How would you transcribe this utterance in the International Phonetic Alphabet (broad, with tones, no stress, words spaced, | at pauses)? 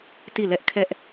ti˦˨lɛ˦ʔkʰɛ˦ʔ